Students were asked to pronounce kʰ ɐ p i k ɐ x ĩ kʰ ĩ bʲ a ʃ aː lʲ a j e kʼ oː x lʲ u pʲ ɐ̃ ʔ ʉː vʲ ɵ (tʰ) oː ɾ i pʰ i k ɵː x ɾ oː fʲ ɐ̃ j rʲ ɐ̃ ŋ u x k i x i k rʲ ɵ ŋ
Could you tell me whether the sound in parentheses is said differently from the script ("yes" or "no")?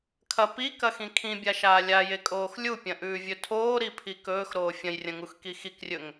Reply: no